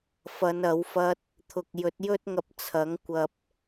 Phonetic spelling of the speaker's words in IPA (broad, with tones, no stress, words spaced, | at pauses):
fɐ˨˧n ɐ˨˥wfɐ˥t̚ | t̪ʰʊ˨k̚jɵ˨˥t̚ jɵ˥t̚ŋɐ˧p̚ t͡sʰɐ˨˥ŋkʷɐ˧p̚